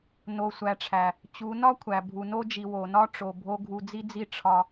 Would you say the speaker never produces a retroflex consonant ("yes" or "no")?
no